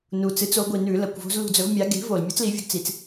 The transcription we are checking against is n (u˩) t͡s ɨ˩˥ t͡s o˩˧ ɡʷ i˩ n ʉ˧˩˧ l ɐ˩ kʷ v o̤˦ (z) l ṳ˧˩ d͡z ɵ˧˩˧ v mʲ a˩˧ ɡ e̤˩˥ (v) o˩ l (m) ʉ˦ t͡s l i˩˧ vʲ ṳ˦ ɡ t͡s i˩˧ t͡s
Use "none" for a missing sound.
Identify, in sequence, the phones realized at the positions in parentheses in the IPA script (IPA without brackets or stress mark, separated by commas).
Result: u˩, z, v, mʲ